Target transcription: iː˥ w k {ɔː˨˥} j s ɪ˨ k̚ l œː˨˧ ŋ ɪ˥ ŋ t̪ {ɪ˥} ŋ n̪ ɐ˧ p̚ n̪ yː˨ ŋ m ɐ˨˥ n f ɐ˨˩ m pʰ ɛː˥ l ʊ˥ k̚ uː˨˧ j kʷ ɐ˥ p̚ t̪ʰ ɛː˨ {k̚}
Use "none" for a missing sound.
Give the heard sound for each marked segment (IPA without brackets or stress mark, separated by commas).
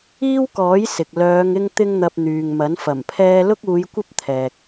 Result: ɔː˨˥, ɪ˥, k̚